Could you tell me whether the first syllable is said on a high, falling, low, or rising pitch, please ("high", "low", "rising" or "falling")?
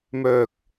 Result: low